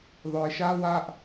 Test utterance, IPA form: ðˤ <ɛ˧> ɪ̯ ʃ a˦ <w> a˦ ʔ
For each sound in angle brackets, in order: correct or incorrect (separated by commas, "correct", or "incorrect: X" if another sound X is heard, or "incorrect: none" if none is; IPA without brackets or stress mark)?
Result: incorrect: œ˧, correct